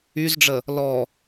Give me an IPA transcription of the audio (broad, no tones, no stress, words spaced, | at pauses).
yzɖ͡ʐə | lɔ